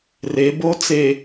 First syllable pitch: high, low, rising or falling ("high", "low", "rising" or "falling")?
rising